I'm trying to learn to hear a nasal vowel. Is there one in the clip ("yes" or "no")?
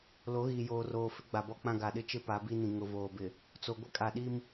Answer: yes